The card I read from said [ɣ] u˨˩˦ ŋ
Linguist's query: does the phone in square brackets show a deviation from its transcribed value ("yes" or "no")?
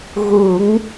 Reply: no